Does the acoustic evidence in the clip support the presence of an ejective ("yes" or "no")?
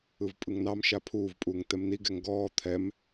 yes